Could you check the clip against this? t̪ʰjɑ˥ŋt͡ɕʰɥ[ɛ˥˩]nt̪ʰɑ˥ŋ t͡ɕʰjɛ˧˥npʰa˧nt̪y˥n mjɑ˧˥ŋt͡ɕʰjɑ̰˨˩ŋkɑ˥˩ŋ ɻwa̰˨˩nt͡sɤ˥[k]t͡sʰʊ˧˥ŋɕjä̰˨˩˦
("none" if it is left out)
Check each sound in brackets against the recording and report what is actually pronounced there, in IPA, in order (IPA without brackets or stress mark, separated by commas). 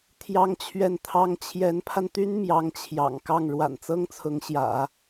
ɛ˥˩, ŋ